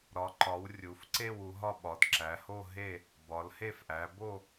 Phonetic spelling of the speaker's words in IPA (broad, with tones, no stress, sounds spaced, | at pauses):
ɾ ɒ˨˦ ǃ ɒ˨˦ w rʲ u˨˦ f ǀ e˥˧ w u˨˦ ɦ ɒ˥˧ ɓ ɒ˨˦ d ǁ æ˨˦ h o˥˧ ɦ e˥˧ | b ɒ˨˦ l h e˥˧ f ʔ æ˨˦ b o˥˧